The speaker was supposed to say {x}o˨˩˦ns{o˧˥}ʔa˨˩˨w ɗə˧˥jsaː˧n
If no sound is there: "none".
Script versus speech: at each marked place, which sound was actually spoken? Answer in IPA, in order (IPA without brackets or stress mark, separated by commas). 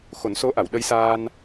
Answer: x, o˧˥